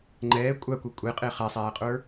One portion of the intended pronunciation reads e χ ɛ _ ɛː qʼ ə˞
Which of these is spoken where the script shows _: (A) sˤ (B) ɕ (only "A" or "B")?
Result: A